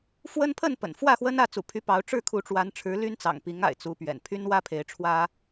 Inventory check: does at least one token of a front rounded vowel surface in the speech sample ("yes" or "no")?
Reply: yes